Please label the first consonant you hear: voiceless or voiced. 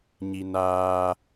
voiced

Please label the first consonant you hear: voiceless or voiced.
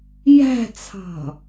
voiced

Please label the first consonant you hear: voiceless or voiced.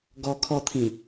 voiced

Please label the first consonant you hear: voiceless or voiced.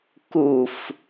voiceless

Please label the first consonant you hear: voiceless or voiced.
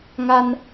voiced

